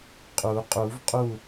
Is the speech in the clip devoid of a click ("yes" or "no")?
yes